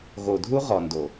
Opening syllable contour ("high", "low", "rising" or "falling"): low